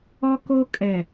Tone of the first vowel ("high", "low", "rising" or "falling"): high